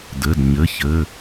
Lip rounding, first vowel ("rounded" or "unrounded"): unrounded